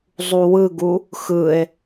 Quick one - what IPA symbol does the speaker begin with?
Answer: zˤ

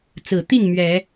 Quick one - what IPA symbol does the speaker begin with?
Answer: t͡s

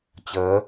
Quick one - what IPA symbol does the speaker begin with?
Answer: t͡ɕ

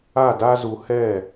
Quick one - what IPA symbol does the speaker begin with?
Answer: a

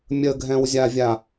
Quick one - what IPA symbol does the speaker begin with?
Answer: mʲ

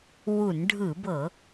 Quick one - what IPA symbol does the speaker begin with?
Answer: w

